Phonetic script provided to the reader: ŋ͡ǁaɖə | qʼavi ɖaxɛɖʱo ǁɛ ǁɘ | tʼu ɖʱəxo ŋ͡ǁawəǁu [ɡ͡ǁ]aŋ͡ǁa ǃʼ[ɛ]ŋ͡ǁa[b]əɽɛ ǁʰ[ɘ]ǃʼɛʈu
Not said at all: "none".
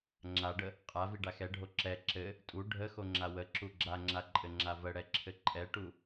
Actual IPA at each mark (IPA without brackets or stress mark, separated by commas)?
ɡ͡ǁ, ɘ, v, ɘ